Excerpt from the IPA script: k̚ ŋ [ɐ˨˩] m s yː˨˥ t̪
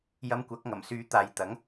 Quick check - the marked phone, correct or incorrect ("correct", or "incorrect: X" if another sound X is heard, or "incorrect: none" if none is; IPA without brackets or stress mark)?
correct